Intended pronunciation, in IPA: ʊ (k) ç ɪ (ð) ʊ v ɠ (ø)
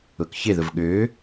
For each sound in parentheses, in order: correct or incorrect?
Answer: correct, correct, correct

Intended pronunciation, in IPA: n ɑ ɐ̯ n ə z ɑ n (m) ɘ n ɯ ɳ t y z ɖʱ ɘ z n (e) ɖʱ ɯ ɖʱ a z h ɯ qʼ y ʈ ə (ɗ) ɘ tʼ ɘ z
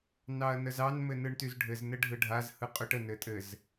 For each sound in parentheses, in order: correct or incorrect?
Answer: correct, incorrect: ɘ, incorrect: n

